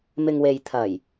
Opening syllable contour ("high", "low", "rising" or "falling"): low